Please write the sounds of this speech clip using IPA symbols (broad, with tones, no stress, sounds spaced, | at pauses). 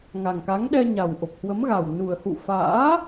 ŋ a˨˩ ŋ k a˨˦ ŋ ɗ ɛ˧ ɲ a˨˩ w ʔ o˨˩ p̚ h w ə˨˦ m ɣ a˨˩ w n u˨˩ ə̯ h ṵ˧˨ f a̰ː˧˥